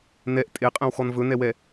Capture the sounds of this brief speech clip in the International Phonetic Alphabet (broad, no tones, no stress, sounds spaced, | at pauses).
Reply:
n ɛ ʔ tʼ e qʼ ɛ̃ w x ɔ n v ɵ n ɛ w ɛ